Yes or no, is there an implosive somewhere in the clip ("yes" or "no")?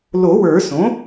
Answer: no